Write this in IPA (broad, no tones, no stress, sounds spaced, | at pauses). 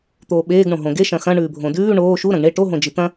t̪ oː ɓ eː ɡ ɳ õ ɦ õ ɡ e ʃ ɐ̃ x ɐ̃ ɳ ʉː bʱ õ d ʉː ɳ oː ʃ u ɾ ɐ̃ ɡ ɳ e ʈ o ɦ õ d͡ʒ i t̪ ɐ̃